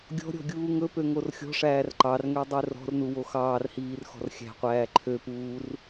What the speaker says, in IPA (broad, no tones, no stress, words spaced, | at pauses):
ɡʲɔ̤ɾʲɔ̤ ɡʲuːŋɵpø ŋorxʲɔ̤ʂæːr ǃɑrŋø dˤørɔ̤rnu woxɑːrhiːr xɔ̤rxʲæ̤qʷæː ǃʰøpuːr